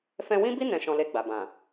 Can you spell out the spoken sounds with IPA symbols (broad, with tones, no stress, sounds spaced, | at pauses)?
f ɛ̃˧ w ĩ˦ b i˦ n ɛ̃˧ ʃ ɔ̃˧ l e˧ ɡ͡b a˨ b ã˨